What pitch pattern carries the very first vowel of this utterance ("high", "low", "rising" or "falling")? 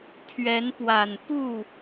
rising